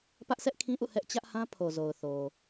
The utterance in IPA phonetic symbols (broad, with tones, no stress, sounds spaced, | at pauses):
p ä˦ ʔ s ɛ˦ ʔ kʰ ĩ˦ ʔ ṵ˦˨ h ɛ˦ ʔ t͡ɕ ä˦ ʔ h ã˦ pʰ o˨ z o˨ ʊ̯ θ o˨